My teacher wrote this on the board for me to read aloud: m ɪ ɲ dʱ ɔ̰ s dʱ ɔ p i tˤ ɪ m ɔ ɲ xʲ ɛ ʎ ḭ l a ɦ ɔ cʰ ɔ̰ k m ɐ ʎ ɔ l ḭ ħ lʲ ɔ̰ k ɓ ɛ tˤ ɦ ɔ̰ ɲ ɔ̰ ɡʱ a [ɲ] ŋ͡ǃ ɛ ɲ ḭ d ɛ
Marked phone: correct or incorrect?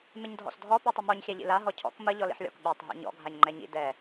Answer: correct